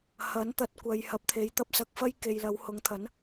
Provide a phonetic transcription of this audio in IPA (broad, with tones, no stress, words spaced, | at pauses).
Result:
hɐ˨˥nt̪ɐ˧t̚kʷɐ˨j hɐ˨p̚t̪ʰe˨j t̪ɐ˥p̚sɐ˧k̚fɐ˥j ke˨jlɐ˨˧whʊ˨˧ŋt̪ʰɐ˨˥n